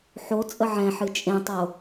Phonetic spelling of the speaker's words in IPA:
ħ o t͡sʼ ə ʕ ɛ̃ ħ ɨ t͡ʃʼ ẽ tˤ o

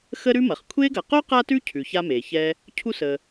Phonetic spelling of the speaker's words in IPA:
x ə˦ ɾ ʉ˦ m ɐ˩ χ kʷʰ e˥ ɡ ɐ˨ q o˥ q a˦ t ʉ˦ cʰ ʉ˩ ç a˦ m e˩ ç ɛ˥ | cʰ u˥ s ə˨

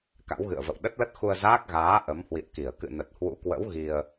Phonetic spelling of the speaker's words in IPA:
k a̰˧˥ w ɣ ɨ̰˧˨ ə̯ v ə̰˧˨ w ɗ ə˦˥ t̚ l ə˦˥ t̚ x u˧ ə̯ z aː˦˥ k̚ ɣ aː˨˦ ʔ ə˨˦ m h w ḭ˧˨ ə̯ k i˧˩ ə̯ k ɨ̰˧˨ n ə˨˩ t̚ h w ṵ˧˥ k w ə̰˧˥ w ɣ i˧ ə̯

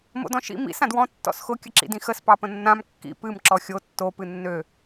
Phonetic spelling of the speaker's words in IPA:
m o̰ d ɔ̃ ʃ ḭ m ḭ s ã d w ɔ̃ tː ɔ̰ s x ʊ kʲ ə ǁ ḭ d ĩ x ə s p ɑ p ə̃ nː ã m kː ḭ p ɨ m ǁ ɔ xʲ o tː o p ɨ nː ø

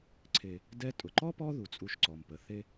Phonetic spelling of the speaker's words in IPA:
ǀʰ e˨ | d ɛ˦ tʼ ʊ˩ ǃ ɔ˥ p ɔ˦ ð u˩ t͡sʼ u˨ ʃ ǀ ɔ˩ m p ə˩ θ e˦

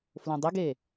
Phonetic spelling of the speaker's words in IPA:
f l õ dˤ ə ɡ e

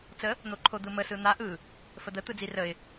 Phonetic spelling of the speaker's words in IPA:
t͡s ə | n̪ o ǃʰ o d̪ ɯ m ə s ɯ n̪ a ʔ ɯ | f ə d̪ ə t̪ ɯ d͡z i r ə ɪ̯

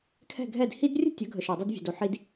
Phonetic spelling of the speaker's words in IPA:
kʰ ɛ̤˥˩ ɡʱ ɛ˥˩ d h i˥ d rʲ ə̤˥ tʲ ə˩˥ ɡʱ ə˩ ʃ ɛ˩ dˤ ə˧ d vʲ ɛ̤˩ d o˩ ħ i˧ d

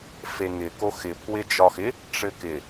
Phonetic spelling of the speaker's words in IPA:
f e ŋ ɪ k o x ɪ pʰ w ɪ d͡ʒ ɒ x ɪ | ʈ͡ʂ ɘ k ɪ

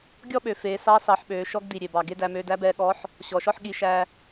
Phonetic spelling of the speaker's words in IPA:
ɡʲ ɔ˥ ɓ ø˩˧ f eː˩˧ s ɑ˧˥ s ɑ˩˧ ħ ɓ øː˩˧ ʃ ɔ˧˥ ɡ d i˩ ɾʲ e˩ b ɑ˩ ɡ e˧ d æ˩˧ m øː˧ d æ˧˥ b ɛː˧ ɠ ɔ˧˥ ħ | ɕ ɔ˩˧ ʃ ɔ˥ ħ ɠ i˧ ʃ æ˧

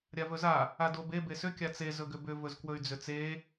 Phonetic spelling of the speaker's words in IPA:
ɾʲ a v ɵ z a | a d o b e b e s ʏ kʲ a t͡s e z ɵ ɡ ʏ b ʏ v ɵ z k w ɵ y̯ d͡z ʏ t͡s e

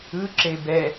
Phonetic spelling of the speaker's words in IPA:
ɯ ǁ e b ɛ

